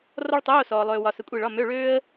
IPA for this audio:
rɔ˥ɭtˤoː˧˥˧sɔː˨ lˠøː˨wɒ˨ sə˨˦kʷʼi˦˨ɭɒ˧˥˧ mø˧˥˧ɭøː˥ə̯

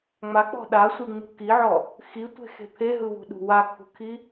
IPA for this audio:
ŋ͡mak͡pɔ̤ ɗasʷiŋ͡mṳ kiʕɔ | xitʷe̤xe̤ pʰeɦɯβṳɗṳ wakʰṳkʰi

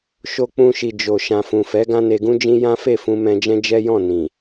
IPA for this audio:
ʃo˧k͡pũ˧ʃi˨ d͡ʒo˨ ʃã˨fũ˨fɛ˨˦ ɡã˦ne˧ɡũ˦d͡ʒĩ˦ jã˦fe˦˨fũ˧ mɛ̃˧d͡ʒɛ̃˦d͡ʒɛ˦jɔ̃˦˨ nĩ˨

